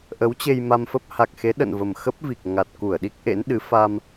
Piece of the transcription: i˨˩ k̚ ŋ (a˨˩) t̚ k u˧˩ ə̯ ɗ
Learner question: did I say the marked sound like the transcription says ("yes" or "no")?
yes